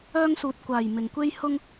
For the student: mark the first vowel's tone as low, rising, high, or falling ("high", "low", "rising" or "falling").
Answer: high